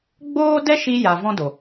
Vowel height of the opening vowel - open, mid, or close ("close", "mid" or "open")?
mid